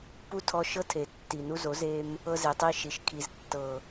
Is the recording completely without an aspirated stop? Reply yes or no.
no